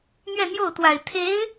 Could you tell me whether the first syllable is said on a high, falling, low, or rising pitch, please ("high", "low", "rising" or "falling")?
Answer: falling